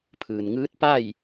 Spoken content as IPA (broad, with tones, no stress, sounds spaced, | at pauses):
pʰ ɯː˩ n ŋ ɯː˧˥ t̚ p a˥˨ j